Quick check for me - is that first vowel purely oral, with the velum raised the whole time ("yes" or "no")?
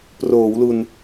yes